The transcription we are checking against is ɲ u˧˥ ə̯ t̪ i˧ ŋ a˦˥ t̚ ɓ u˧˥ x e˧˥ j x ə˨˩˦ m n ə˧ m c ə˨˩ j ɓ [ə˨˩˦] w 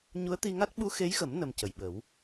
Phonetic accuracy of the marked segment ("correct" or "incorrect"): correct